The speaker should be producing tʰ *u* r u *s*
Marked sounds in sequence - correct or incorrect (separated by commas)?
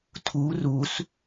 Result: correct, correct